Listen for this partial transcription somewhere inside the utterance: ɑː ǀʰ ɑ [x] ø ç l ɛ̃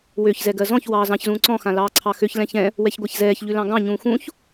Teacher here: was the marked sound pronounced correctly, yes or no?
yes